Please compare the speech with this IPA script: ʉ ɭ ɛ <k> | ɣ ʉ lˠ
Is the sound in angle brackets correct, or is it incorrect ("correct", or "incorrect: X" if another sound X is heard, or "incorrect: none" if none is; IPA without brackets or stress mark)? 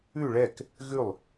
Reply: correct